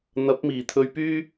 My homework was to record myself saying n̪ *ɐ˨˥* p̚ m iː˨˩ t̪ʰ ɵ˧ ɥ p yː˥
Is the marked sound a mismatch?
no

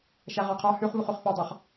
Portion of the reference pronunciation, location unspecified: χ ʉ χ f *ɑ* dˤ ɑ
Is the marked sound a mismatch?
no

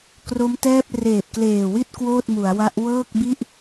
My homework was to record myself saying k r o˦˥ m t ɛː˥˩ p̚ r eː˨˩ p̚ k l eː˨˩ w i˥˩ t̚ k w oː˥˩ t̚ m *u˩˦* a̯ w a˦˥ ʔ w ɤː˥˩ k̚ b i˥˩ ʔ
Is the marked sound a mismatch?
no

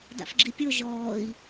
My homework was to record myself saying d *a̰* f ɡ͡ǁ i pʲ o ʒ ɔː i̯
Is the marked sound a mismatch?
no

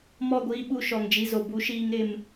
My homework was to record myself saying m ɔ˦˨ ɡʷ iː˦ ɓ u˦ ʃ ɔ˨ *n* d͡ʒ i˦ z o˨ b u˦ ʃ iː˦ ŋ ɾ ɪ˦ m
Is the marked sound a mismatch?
yes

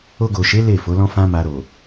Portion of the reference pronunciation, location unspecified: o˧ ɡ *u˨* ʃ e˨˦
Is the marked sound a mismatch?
yes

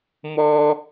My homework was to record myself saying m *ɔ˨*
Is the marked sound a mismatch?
yes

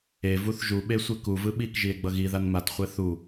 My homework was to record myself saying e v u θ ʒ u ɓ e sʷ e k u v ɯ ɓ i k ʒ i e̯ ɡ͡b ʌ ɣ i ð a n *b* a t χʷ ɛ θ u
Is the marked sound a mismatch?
yes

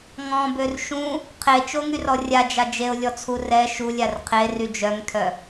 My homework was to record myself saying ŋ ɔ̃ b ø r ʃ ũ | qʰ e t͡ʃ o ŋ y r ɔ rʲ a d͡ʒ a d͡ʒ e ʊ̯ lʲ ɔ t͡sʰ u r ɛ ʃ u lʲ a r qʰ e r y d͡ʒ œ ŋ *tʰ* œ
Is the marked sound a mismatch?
no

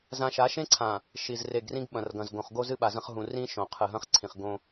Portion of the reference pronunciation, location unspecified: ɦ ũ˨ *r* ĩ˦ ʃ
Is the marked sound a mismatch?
no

